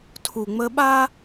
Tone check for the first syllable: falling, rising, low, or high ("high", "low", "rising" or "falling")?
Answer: low